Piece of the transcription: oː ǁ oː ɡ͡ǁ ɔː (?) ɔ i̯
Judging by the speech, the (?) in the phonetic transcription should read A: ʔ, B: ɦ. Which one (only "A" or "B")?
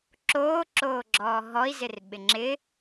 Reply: B